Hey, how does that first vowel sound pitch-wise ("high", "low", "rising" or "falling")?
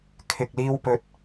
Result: low